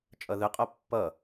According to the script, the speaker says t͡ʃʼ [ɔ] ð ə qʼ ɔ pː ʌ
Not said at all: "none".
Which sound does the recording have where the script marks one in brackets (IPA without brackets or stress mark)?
ʌ